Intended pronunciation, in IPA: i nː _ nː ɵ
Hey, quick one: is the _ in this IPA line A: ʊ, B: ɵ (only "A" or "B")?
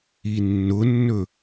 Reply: A